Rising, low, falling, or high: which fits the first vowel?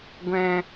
low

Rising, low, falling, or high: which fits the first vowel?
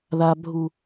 high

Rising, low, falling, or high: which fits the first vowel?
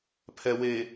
low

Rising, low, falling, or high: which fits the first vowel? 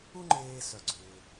high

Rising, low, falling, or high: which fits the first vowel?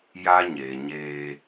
high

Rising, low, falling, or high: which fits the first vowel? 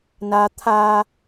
low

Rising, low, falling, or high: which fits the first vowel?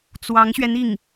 rising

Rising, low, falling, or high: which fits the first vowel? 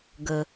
low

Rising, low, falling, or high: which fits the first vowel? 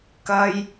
high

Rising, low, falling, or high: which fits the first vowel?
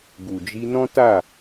low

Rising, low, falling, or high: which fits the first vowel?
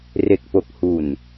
low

